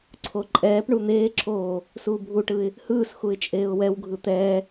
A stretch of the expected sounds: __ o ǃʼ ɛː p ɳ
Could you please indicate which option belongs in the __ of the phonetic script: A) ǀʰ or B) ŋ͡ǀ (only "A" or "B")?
A